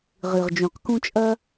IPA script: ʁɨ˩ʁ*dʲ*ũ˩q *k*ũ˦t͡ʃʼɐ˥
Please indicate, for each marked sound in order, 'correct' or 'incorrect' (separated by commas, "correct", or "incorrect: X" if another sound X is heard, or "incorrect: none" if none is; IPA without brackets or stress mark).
incorrect: d͡ʒ, correct